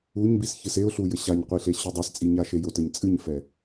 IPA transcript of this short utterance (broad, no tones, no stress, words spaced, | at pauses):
uɲbisçɨs eʊ̯ɬujɘ ɕaɲqʷiɬeɕu dˤɛst͡sʼiɲaʃe jotɘɲ t͡sʼɨɲfɛ